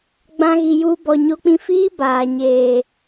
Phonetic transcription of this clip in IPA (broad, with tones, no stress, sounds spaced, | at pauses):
ɡ͡b ã˦ ɣ i˧ j u˦ b ɔ˧ ɲ o˦ k͡p ĩ˦ f iː˦ b aː˨ ɲ eː˨